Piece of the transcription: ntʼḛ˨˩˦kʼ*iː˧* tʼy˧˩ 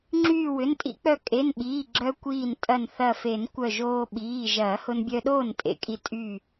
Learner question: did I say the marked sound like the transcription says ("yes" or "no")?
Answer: no